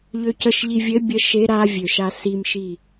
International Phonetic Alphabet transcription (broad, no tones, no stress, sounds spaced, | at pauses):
ʎ ø c ə ʃ ʎ i vʲ ɘ bʲ ə ʃ e ɾ a vʲ ø ʃ a s i m ʃ i